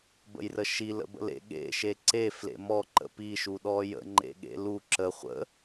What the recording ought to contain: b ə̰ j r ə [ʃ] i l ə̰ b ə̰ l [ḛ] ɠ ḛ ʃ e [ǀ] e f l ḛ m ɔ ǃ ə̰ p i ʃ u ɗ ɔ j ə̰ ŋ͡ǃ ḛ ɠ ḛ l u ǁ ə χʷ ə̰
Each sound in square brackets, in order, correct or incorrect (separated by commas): correct, correct, correct